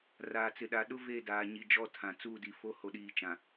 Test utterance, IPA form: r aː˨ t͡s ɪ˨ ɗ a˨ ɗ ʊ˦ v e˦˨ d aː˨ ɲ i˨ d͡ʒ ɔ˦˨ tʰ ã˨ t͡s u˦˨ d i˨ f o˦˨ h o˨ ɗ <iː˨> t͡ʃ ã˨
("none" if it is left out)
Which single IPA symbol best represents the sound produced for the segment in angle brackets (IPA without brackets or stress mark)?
iː˨